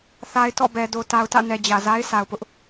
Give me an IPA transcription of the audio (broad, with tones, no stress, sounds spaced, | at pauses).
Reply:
θ a˨ ɪ̯ t ɔ̰˦˨ b ɛ˨ d o˨ t a˨ ʊ̯ t ä̰˦˨ n ɛ˨ d͡ʑ ä˨ z a˦ ɪ̯ sʰ a˨ ʊ̯ p ʊ˦ ʔ